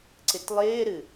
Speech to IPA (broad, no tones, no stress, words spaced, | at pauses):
ǀɪtlˠɪːɾɨ